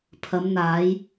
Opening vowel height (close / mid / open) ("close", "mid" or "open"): open